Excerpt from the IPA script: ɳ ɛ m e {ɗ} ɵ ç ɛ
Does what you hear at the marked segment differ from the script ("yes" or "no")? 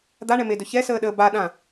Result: yes